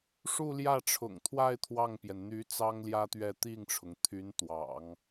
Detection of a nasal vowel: absent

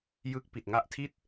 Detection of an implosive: absent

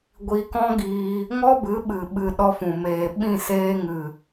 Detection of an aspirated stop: absent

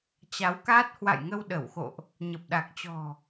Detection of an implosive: present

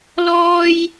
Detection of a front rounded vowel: absent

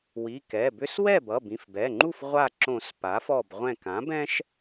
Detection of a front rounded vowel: present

